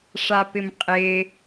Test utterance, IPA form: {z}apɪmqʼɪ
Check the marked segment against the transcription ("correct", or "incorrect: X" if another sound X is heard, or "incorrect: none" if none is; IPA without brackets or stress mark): incorrect: ʂ